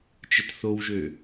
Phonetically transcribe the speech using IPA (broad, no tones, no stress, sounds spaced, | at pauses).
t͡ʃ ə t θ o w ʒ ø